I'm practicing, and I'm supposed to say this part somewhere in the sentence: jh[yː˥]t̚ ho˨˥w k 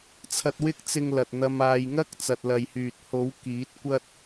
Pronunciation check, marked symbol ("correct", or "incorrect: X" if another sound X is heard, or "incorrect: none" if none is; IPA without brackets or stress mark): incorrect: yː˨